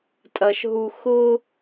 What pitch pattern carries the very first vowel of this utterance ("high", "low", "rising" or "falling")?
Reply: low